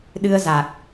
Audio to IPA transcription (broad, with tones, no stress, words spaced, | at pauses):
ɗɨ˧ə̯za˨˩k̚